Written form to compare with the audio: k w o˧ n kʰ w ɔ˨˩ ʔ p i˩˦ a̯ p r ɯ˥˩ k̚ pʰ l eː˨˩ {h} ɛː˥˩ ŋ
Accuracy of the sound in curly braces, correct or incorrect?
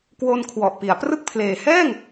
correct